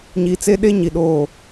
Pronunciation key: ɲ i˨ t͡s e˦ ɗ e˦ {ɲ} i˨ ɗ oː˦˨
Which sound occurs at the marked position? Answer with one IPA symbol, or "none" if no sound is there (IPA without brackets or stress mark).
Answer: ɲ